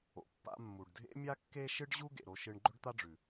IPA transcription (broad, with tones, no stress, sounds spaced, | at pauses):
o̰˩ pː a̰˧ mː u˩ ɖ dʱ ḛ˥ mʲ a˥ kː e˥ ʃ ɨ˥ ɖ ʑ u˥ ɡ ḛ˩ ɾ o˧ ʃ ɨ˧ ɳ ɡ͡ǃ ɵ˥ ɖ t̪ a˥ ɖ͡ʐ ʉ˩